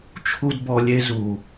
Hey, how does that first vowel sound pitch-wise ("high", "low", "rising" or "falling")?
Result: high